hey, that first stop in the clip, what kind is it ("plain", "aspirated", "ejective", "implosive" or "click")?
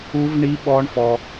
implosive